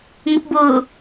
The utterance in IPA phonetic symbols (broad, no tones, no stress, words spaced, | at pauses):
ŋʊpbʊː